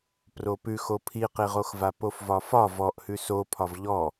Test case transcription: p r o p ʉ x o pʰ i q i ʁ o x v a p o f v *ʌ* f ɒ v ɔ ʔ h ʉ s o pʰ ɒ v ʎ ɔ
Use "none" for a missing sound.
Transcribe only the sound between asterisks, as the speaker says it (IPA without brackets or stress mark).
ɒ